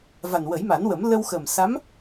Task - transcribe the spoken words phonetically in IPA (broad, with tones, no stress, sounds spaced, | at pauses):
v a˨˩ n w ə˨˩˦ j m a˨˩˦ n w ə˨˩˦ m l ə˧ w x ə˨˩ m s a˧˥ m